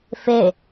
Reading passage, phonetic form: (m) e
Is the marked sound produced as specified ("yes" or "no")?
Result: no